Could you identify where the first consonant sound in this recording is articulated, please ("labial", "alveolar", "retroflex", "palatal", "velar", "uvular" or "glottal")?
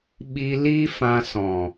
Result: labial